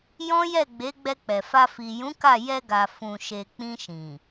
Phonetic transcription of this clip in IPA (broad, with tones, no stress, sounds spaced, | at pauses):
j ɔ̃˦ j ɛ˦˨ ɡ͡b e˨˦ ɡ͡b ɛ˧ k͡p ɛ˨ f a˧ f i˨ j ũ˨˦ k a˦˨ j ɛ˧ ɡ a˨ f ũ˨ ʃ e˨ k͡p ĩ˧ ʃ ĩ˨